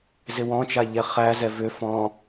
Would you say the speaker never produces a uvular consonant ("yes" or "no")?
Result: no